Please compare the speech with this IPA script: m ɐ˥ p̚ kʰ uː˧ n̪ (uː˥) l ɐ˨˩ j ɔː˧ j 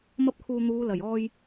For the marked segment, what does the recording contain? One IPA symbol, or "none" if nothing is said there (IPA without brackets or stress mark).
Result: uː˨˧